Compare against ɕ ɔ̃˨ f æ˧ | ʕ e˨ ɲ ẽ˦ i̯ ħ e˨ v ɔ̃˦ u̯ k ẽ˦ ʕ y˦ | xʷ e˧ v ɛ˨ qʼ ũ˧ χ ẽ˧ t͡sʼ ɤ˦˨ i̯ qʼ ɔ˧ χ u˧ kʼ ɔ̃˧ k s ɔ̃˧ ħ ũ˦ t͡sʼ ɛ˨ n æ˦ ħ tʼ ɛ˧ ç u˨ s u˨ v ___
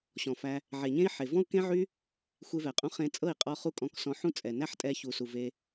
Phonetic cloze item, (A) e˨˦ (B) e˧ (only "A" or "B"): B